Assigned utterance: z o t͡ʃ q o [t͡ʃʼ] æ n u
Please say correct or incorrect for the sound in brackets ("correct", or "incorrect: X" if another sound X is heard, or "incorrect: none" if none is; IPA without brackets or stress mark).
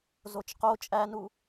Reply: correct